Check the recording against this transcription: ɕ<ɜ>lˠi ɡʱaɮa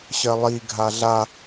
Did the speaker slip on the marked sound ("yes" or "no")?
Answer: no